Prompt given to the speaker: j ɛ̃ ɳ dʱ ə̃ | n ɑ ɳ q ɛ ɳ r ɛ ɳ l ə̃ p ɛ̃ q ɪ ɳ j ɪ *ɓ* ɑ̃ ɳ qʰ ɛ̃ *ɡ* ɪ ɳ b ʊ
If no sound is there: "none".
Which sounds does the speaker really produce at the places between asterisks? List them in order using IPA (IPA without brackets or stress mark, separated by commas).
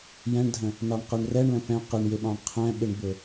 ɓ, ɓ